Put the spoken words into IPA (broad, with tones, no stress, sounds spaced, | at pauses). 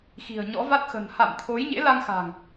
x i̤˨˩ ə̯ ɲ ɔ̰˧˥ v a˦˥ t̚ x ə̤˨˩ n h a̰˧˨ m t̪ʰ o˨˦ j ɲ ḛ˧˥ l a˧ ŋ x a̤˨˩ ŋ